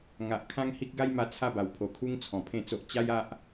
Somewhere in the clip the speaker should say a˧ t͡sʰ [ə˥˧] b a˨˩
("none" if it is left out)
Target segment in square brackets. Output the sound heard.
a˥˧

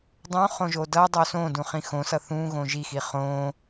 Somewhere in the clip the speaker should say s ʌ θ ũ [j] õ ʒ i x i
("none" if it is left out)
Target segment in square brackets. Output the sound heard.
ɣ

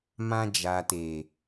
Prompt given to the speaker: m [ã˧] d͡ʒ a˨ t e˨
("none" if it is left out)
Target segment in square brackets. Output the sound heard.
ã˧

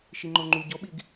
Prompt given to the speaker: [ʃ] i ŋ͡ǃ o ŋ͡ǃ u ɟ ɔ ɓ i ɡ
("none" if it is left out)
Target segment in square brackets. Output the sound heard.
ʃ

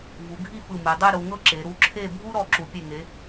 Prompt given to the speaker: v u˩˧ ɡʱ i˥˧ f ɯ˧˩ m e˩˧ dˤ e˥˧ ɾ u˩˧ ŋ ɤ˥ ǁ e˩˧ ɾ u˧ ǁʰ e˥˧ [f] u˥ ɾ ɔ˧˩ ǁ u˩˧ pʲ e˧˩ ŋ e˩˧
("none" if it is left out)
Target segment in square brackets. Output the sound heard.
bʱ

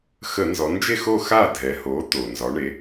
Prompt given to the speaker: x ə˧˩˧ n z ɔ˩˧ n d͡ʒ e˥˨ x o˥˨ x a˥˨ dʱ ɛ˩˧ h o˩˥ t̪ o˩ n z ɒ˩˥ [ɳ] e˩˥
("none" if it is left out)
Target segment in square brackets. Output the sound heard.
ɳ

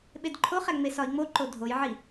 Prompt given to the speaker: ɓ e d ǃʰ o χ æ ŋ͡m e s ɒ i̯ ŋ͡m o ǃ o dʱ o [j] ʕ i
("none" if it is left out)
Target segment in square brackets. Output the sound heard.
j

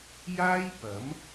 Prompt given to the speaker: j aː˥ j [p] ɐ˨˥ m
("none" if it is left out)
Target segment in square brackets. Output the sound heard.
p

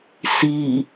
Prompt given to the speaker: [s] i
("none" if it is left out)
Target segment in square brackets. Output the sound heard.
s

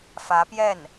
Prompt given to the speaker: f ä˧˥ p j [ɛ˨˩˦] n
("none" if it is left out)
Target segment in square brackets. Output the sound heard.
ɛ˥˩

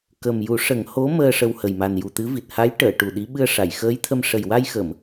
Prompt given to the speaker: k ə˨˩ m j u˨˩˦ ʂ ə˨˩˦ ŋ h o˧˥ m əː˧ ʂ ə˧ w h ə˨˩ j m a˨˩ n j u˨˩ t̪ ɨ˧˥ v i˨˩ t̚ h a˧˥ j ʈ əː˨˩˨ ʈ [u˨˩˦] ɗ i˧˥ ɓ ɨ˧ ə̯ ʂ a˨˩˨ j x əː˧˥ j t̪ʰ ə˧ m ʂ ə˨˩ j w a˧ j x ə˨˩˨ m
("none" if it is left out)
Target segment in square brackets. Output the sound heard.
u˨˩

